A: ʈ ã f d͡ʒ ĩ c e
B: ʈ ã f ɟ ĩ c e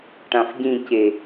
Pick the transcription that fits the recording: B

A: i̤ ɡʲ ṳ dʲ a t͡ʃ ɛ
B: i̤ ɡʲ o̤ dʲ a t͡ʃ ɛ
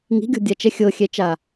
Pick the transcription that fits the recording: B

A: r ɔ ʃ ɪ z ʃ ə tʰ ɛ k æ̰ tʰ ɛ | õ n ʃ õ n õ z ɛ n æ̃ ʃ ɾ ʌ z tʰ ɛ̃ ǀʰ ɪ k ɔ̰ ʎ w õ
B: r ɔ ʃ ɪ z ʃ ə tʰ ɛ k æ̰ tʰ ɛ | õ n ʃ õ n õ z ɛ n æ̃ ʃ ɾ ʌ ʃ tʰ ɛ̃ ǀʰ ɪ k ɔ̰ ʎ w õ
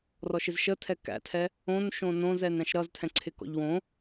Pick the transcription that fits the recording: A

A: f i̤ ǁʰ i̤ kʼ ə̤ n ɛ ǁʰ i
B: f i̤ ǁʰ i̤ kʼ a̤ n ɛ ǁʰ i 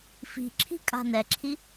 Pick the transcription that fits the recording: B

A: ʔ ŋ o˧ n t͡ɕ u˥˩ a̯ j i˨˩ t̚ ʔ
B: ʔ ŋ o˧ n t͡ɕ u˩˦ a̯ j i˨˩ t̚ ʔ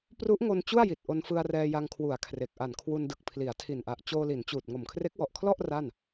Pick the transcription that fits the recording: A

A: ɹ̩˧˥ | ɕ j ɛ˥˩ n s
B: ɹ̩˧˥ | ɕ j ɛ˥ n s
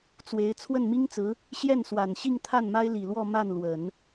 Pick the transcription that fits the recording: A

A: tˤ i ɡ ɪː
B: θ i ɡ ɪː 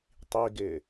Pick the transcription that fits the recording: A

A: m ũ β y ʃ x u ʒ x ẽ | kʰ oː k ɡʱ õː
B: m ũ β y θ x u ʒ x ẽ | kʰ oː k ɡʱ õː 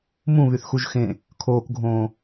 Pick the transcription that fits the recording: B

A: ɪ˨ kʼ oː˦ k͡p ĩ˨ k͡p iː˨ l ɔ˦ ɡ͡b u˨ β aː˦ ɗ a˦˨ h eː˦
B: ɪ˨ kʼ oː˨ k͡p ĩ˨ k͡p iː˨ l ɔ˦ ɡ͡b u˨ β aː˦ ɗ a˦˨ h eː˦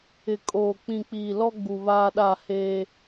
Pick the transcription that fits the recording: B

